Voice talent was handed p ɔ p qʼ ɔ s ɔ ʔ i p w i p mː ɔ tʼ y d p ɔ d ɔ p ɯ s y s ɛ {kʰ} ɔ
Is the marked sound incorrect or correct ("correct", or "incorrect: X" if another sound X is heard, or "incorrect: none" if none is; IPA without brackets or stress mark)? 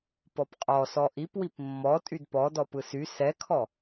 correct